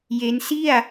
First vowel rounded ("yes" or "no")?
no